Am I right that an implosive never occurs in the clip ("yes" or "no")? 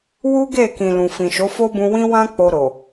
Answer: yes